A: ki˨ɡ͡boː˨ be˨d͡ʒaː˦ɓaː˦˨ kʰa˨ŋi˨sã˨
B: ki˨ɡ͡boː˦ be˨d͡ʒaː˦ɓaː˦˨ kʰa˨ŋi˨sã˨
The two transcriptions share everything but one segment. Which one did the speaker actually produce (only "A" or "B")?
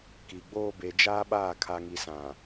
B